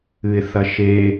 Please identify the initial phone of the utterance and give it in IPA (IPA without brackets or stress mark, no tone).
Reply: ɨ